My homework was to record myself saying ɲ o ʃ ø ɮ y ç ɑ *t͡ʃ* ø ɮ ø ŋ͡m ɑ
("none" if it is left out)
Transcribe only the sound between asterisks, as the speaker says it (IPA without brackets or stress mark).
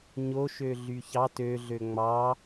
t